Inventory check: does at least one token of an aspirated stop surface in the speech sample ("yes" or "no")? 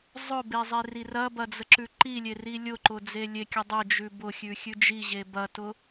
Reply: no